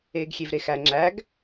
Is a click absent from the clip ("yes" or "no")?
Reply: no